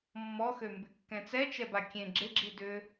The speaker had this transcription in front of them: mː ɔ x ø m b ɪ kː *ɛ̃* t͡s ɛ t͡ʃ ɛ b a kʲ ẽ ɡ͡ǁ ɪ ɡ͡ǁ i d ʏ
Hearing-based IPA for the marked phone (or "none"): ɛ̃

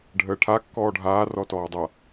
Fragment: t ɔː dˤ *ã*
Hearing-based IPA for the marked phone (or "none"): a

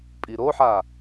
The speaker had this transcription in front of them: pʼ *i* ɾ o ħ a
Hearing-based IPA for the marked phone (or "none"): i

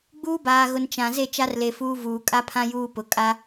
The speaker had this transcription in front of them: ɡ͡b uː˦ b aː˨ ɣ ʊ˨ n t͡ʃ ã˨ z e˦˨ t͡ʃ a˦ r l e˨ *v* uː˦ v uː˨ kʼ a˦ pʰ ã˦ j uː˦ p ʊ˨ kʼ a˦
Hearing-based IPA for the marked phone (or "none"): f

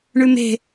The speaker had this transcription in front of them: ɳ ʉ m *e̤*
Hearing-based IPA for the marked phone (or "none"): e̤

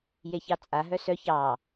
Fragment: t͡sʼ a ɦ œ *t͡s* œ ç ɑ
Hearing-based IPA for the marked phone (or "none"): s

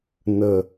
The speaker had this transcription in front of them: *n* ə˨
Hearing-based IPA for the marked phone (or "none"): n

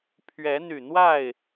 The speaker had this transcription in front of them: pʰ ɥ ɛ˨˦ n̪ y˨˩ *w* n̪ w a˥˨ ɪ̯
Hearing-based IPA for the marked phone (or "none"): none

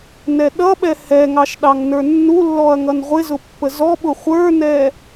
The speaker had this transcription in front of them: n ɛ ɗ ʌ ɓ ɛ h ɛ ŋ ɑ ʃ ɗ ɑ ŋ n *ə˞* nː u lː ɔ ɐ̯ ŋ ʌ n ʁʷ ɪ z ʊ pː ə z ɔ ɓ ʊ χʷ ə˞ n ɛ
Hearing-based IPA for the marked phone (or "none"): ə˞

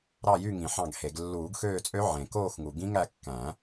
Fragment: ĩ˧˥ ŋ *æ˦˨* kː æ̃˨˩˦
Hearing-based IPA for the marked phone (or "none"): æ˦˨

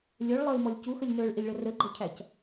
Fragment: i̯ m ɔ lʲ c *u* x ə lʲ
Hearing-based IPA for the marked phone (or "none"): u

